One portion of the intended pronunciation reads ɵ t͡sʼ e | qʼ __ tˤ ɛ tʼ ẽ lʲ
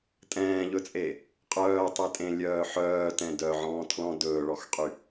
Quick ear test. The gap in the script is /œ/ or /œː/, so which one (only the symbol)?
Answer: œː